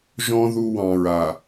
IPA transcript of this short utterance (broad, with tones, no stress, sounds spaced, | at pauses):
ʒ ɔ̃˦ ð u˦ w ɑ̃˨ ɹ a˨